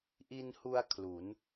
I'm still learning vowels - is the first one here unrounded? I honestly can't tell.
yes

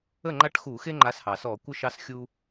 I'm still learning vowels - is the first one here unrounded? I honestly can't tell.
yes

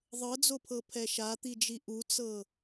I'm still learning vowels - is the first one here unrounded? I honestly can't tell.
yes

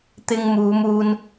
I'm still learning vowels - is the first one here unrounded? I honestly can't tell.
yes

